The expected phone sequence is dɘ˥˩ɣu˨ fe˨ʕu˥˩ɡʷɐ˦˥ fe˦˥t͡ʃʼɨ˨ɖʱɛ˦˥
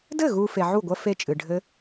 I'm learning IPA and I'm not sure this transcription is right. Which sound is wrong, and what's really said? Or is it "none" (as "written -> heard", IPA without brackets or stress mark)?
ɛ˦˥ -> ɘ˦˥